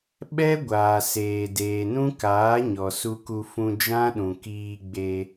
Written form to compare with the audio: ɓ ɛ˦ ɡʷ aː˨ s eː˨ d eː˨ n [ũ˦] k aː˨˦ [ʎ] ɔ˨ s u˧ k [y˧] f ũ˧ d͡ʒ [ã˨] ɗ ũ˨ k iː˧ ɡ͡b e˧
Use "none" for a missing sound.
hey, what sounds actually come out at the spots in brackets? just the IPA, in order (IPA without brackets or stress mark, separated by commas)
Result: ũ˦, ɲ, u˧, ã˦